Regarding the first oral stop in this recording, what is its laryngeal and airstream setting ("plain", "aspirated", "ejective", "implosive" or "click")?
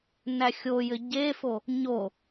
plain